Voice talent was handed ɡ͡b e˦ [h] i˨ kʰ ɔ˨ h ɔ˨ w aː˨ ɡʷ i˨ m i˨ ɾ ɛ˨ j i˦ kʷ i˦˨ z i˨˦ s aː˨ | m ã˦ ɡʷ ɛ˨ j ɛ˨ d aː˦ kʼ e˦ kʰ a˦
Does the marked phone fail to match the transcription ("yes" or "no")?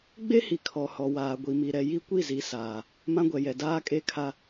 no